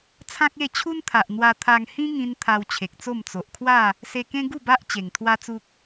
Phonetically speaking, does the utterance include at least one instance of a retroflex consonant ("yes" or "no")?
no